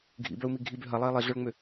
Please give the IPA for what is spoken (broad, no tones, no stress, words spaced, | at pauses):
ɡʱḭbœu̯mi ɡʱibø ɦɐlˠei̯ lˠiɮœɭŋ͡mʏ